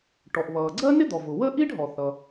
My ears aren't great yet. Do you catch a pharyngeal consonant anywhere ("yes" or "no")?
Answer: no